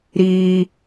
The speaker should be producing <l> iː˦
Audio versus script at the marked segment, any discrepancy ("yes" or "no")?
yes